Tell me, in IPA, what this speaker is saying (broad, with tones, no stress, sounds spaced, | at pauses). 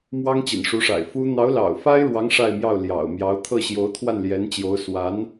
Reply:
m w ɑ˥ ŋ t͡ɕ ḭ˨˩ n ʂ u˧˥ ʂ a̰˨˩ ɪ̯ f u˥ n̪ ɑ˧˥ ʊ̯ l ɑ̰˨˩ ʊ̯ f a˥ ɪ̯ ɻ w ɑ˧˥ ŋ ʂ a˥˧ ɪ̯ m j ɑ˥˩ ʊ̯ l j ɑ̰˨˩ ʊ̯ m j ɑ˧˥ ʊ̯ t̪ʰ ɤ˥˩ ɕ j o˧˥ ʊ̯ t̪ʰ w a˥˩ n l j ɛ˧˥ n t͡ɕ j o˧˥ ʊ̯ s w a˧˥ n